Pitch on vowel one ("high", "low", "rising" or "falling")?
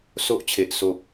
high